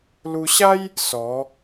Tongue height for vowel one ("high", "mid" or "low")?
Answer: high